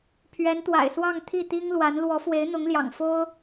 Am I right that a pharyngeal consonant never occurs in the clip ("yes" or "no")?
yes